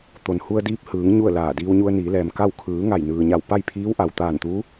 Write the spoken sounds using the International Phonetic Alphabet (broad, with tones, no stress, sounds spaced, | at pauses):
t̪ o˩ n h u˧ ə̯ d iː˧ p̚ h ɯː˩˧ ŋ ɲ u˥˨ ə̯ l aː˧˩ d iː˧ w ɲ u˧ ə̯ n iː˩˧ l ɛː˩ m k a˥˨ w kʰ ɯː˩˧ ŋ a˧˩ j n ɯː˩ ɲ a˧˩ w p a˥˨ j pʰ iː˧˥ w ʔ a˩ w t̪ aː˧˩ n t̪ uː˧˥